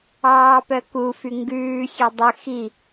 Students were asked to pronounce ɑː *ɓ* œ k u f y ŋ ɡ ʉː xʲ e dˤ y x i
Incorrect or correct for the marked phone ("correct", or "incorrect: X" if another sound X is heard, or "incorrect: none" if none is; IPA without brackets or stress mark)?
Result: incorrect: p